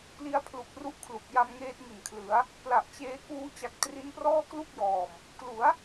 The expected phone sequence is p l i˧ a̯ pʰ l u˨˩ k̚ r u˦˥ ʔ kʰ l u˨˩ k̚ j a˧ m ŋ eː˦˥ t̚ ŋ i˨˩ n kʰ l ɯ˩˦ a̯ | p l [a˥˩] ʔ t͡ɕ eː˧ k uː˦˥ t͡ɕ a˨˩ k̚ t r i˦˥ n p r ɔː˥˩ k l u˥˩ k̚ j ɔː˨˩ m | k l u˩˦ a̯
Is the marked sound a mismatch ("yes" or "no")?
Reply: yes